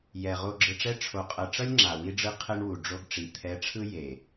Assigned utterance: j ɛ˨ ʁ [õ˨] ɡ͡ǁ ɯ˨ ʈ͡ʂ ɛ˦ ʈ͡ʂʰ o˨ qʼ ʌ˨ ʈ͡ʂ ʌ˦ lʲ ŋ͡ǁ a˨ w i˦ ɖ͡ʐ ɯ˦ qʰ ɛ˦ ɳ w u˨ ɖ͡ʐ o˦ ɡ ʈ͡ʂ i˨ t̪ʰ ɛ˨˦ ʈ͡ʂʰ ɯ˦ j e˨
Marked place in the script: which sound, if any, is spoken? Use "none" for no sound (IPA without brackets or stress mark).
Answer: o˨